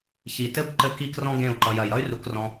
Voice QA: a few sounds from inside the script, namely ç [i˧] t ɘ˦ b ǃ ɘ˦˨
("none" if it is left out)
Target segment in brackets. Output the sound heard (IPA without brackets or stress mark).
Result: i˨